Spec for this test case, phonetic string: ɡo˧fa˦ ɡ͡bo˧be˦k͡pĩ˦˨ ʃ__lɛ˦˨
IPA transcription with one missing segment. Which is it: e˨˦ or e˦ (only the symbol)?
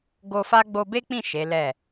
e˨˦